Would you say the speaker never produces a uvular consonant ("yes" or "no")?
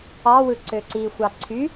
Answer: yes